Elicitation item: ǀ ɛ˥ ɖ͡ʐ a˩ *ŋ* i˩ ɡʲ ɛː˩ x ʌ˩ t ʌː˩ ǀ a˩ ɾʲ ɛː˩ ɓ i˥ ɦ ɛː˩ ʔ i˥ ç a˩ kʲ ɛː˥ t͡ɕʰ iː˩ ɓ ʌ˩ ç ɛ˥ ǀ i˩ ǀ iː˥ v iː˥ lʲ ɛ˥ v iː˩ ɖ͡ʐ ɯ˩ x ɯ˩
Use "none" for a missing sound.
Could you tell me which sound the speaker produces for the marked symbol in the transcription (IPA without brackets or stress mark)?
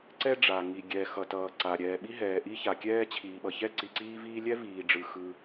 ŋ